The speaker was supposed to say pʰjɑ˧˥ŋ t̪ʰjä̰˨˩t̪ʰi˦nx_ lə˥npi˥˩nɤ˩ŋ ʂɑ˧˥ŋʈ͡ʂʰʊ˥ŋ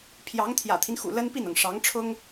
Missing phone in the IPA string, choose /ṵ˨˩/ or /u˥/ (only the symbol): ṵ˨˩